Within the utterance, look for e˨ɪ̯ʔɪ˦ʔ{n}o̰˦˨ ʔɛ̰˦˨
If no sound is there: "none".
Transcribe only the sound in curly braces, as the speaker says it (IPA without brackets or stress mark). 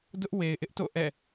t